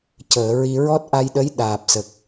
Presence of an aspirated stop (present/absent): absent